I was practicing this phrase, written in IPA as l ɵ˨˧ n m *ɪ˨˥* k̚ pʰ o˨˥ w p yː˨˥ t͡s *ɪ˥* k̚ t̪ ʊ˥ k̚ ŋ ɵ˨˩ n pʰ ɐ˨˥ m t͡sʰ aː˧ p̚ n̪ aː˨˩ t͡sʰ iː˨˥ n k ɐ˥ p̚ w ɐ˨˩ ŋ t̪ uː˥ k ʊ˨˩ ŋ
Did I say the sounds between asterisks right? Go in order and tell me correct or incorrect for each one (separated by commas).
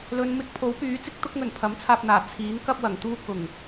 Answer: correct, correct